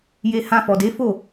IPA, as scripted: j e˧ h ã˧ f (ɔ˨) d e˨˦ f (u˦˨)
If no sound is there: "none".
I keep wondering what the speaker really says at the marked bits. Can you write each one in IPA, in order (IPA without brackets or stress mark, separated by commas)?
ɔ˨, o˦˨